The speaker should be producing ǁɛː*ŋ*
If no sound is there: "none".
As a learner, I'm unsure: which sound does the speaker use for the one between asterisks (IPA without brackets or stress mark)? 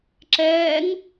ŋ